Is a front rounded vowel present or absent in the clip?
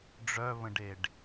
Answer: present